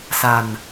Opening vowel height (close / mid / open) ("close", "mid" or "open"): open